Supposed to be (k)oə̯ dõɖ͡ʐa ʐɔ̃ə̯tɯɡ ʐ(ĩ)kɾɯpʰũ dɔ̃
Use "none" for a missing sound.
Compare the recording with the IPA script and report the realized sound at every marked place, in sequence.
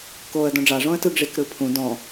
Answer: k, i

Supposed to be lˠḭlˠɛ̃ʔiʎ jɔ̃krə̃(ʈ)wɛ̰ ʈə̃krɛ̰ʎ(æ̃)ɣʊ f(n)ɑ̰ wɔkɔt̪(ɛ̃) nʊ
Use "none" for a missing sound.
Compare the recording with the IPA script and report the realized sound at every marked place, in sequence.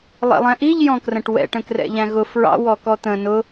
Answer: ʈ, æ̃, ɹ, ə̃

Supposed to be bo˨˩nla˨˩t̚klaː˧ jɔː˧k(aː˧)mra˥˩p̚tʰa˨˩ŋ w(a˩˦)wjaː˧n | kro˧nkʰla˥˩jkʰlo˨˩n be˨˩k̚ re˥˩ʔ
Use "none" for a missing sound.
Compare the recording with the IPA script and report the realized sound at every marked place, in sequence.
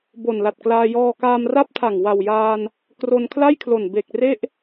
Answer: aː˧, a˨˩

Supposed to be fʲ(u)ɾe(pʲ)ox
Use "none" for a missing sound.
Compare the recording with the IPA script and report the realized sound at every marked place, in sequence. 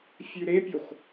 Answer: ʉ, pʲ

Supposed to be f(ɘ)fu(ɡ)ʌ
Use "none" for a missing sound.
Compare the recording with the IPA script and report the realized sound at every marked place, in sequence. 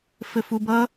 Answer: ɘ, b

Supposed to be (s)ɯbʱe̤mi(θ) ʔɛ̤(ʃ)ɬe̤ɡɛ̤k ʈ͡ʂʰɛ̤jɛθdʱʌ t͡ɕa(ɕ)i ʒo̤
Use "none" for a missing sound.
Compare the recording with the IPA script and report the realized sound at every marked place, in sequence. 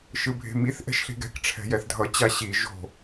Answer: ʃ, θ, ʃ, ɕ

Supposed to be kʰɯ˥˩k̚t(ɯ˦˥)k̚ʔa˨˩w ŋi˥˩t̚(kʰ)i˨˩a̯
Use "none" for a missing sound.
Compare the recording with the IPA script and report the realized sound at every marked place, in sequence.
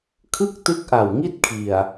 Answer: ɯ˦˥, kʰ

